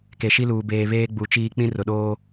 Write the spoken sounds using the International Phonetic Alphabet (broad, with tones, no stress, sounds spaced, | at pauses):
k e˨ ʃ i˦ l uː˨ b eː˨ β eː˦ ɡ͡b u˨˦ t͡ʃ iː˦ k͡p ĩ˦ r ʊ˨ ɗ oː˦